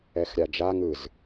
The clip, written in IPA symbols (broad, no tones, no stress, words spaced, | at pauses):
ɛxɾʲad͡ʒa ŋɯz